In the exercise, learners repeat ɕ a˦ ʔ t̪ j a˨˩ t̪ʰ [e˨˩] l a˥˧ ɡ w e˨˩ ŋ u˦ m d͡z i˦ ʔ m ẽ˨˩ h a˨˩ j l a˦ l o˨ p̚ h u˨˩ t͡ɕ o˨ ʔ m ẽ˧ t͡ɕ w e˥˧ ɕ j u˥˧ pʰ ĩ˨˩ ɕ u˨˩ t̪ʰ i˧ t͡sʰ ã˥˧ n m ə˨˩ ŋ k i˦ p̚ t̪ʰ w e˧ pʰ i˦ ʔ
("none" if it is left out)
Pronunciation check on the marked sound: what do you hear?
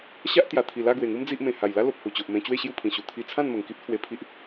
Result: i˨˩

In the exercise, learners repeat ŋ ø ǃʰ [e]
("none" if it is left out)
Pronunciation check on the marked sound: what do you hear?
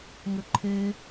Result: e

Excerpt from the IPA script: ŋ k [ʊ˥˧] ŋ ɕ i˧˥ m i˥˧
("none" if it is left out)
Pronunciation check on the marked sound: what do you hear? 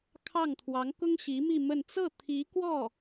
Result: ʊ˥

